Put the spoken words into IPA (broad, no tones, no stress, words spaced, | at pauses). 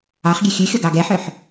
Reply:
ɑχɡʲe xʲʉxʲɔɡɑ ɡɛħœħ